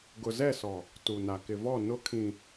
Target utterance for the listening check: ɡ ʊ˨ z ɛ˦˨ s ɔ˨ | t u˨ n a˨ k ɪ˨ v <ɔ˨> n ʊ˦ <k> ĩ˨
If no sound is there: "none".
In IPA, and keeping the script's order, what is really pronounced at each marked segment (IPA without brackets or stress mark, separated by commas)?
ɔ˦˨, kʰ